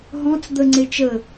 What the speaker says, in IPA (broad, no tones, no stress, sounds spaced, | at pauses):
ɦ ɔ̃ t͡s d̪ ə ŋ͡ǀ e t͡ʃ ə